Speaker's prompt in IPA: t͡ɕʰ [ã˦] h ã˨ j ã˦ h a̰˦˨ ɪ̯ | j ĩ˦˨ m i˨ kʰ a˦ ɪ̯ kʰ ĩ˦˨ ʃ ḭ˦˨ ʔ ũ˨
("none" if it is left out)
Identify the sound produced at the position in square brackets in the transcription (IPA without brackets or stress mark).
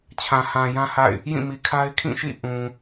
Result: ã˨